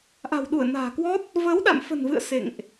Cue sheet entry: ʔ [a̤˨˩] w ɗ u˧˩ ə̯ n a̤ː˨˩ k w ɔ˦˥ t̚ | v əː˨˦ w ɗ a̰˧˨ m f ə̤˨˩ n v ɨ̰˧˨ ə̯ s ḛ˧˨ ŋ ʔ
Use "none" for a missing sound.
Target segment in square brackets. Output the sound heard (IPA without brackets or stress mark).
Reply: a̤˨˩